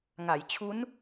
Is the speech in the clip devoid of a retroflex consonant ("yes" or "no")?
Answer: yes